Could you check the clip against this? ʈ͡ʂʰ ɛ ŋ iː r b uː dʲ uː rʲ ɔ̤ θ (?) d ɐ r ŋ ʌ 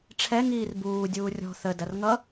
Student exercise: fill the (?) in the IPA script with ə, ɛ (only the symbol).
ə